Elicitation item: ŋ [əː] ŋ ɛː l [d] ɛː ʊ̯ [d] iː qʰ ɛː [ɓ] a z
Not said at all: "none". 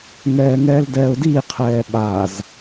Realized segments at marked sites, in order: ɛː, d, d, ɓ

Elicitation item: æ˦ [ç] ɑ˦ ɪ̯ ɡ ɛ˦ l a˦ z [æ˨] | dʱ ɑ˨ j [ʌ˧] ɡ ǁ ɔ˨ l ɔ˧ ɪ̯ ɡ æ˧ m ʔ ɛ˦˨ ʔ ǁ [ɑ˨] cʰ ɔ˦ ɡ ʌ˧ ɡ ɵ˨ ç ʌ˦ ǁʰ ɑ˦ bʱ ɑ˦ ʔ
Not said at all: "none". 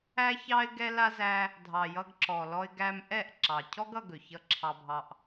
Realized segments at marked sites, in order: ç, æ˦, ʌ˧, ɑ˨

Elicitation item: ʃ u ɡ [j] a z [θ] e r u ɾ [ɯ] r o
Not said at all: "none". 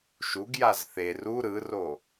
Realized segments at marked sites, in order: j, θ, ɯ

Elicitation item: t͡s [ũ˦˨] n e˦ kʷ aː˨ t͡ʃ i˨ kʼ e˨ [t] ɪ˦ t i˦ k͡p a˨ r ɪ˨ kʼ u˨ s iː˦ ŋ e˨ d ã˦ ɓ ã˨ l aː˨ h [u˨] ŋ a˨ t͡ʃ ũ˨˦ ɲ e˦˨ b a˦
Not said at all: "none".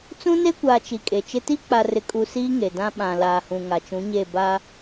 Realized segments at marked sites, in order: ũ˦, t͡ʃ, ũ˨

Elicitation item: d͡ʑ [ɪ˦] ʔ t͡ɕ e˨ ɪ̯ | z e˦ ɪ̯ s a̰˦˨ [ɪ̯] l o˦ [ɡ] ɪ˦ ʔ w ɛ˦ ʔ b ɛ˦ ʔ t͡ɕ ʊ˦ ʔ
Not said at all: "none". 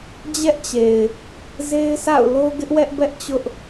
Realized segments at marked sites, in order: ɛ˦, ʊ̯, ɡ

